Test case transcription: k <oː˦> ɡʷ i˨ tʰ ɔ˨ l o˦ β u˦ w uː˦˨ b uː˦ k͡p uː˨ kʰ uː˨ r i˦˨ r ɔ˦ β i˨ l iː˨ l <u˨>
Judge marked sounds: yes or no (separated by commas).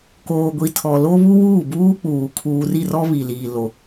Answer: no, no